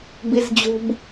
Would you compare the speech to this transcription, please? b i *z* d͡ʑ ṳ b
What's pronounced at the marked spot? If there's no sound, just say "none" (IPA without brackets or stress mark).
z